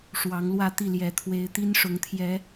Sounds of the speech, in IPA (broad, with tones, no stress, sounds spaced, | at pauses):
ʂ w ɑ˨˦ ŋ l w ä˥˨ t̪ i˥˨ l j ɛ˨˦ t̪ʰ w e˨˦ ɪ̯ t̪ i˦ n ʂ ʊ˨˦ ŋ t̪ʰ j ɛ˨˦